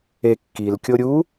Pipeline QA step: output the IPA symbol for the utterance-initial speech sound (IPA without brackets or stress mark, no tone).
e